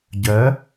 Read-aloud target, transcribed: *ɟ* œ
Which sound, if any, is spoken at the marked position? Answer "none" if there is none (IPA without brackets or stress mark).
ɟ